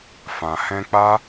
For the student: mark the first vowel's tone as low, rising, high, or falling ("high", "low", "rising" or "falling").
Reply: low